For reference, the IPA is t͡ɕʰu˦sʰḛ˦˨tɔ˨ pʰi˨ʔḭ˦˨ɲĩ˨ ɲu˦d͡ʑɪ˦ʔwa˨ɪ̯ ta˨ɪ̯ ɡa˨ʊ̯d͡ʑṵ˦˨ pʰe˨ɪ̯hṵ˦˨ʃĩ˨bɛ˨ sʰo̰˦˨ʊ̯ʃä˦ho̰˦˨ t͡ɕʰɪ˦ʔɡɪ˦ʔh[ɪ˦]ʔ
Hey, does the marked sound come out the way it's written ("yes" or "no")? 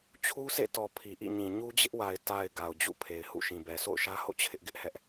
no